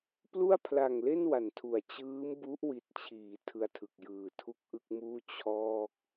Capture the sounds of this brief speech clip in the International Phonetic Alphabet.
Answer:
p l u˥˩ a̯ pʰ l a˨˩ ŋ l e˥˩ n w a˨˩ n tʰ u˨˩ a̯ t͡ɕ ɯː˦˥ m b u˦˥ ʔ w i˨˩ t̚ t͡ɕʰ iː˩˦ tʰ ɯ˧ a̯ tʰ ɯ˨˩ k̚ j ɯː˨˩ tʰ u˥˩ k̚ ʔ ɯ˥˩ k̚ m uː˥˩ t͡ɕʰ ɔː˥˩ k̚

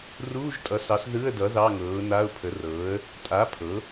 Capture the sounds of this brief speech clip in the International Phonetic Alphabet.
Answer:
r uː˧˥˧ ʒ tʼ ʌ˩˥ s ɑ˩˥ s ð ɯ˧˥˧ ə̯ d ʌ˩˥ ð ɑ˧˥˧ ŋ ɤː˩˥ ʊ̯ n a˧˥˧ ʊ̯ pʰ ə˩˥ r ɤː˩˥ ə̯ | tʼ a˩˥ pʰ ɤ˩˥

